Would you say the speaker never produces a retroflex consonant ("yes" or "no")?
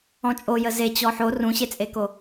yes